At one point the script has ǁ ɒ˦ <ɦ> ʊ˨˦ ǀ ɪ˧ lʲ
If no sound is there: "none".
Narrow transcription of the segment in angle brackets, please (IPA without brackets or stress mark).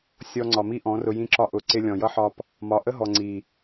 ʔ